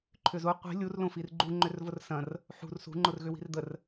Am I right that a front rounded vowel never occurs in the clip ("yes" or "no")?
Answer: no